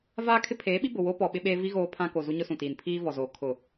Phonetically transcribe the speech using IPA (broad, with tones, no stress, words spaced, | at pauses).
vaː˦kʰɪ˦ pʰeː˨˦ɓi˦ bʊ˨ wo˦ pɔ˨ ɓɪ˦ɓeː˦ vi˦ ɣoː˦pʰã˦ ko˨ zu˦ɲʊ˦sũ˨tiː˨n pʰiː˦vɔ˨zoː˨ kʰʊ˨